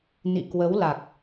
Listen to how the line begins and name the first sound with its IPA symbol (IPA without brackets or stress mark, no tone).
n